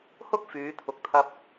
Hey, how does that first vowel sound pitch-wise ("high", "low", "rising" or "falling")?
high